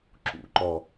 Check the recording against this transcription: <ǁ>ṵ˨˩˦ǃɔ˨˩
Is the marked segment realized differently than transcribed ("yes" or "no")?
no